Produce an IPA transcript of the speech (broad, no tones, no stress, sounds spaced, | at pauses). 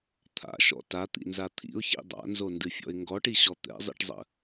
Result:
t̪ʰ a̰ ʃ ɔ̰ t a t̪ ḭ n z a t̪ʰ ḭ ʊ̯ ç ḭ dˤ a̰ n z o n d ɨ fʲ ɔ̰ ɪ̯ ŋ ɡ ɔ ʈ i ɕ ɔ t̪ ɛ̰ zˤ ḭ ʈ zˤ ə̰